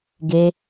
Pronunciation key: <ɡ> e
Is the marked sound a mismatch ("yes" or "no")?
no